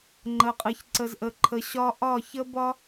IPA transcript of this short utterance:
ŋ͡ǃ ə˨ qʼ ɨ˨ ç ǀ ə˨ z ʔ ə˨ ǃʰ ə˨ ɕ ɒ˦ ʔ ɒ˦˨ ç ə˦ b ɒ˦

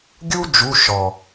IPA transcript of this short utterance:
ɡʲ u˥ d͡ʒ u˧˥˧ ʃ ɔ˨˩

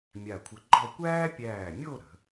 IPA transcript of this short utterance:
mʲ a˧˩ kʷʰ ə˧ ɡ͡ǃ ɔ˥˧ kʷ æː˥ pʲ æː˧˩ mʲ o˥˧ ɾ ə̤˩˧

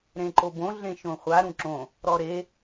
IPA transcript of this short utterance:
ɾ ẽ ǃ o b õ ɮ ẽ ʃ õ χʷ a ɾ ũ ǁ õ | ɾ ɔ ɾ e

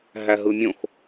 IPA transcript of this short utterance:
ɦ æ ɦ ɯ mʲ õ x

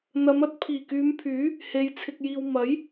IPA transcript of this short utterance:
n̪ ɐ˨˧ m ɐ˧ t̚ pʰ iː˨˩ k yː˨˧ m pʰ yː˨˥ | h e˨˧ j t͡sʰ ɪ˨ k̚ j iː˨ w m ɐ˨˥ j

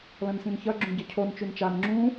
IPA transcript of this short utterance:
l ɐ̃ n s ĩ n ç ɐ ɡ͡ǁ ũ ɟ ɐ cʰ o n t͡ʃ ʉ n t͡ʃ a n ŋ͡ǁ ũ

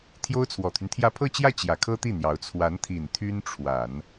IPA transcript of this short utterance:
t̪ʰ j o˥ ʊ̯ t͡sʰ w ɔ˨˩ t̪ʰ y˦ n t̪ʰ j ä˥˧ pʰ ɤ˥˧ t͡ɕ j ä˥˩ t͡ɕ j ä˨˩ kʰ ɤ˥ t̪ i˥˩ n̪ j ɑ˧˥ ʊ̯ t͡sʰ w a˧˥ n t̪ʰ i˨˩ n t̪ʰ y˥ n ʈ͡ʂʰ w a˨˩˦ n

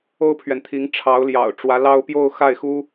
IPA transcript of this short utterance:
o˥ ʊ̯ pʰ ɥ ɛ˨ n t̪ʰ i˧˥ ŋ ʈ͡ʂʰ ɑ˧˥ ʊ̯ l j ɑ̰˨˩ ʊ̯ ʈ͡ʂ w ä˧˥ l ɑ˥ ʊ̯ p j o˥˧ ʊ̯ x a˥˩ ɪ̯ x u˥

